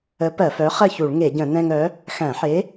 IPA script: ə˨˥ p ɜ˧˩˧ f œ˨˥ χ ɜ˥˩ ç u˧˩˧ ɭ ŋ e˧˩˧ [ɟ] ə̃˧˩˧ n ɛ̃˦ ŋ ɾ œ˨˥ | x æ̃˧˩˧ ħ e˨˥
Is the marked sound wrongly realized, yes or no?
no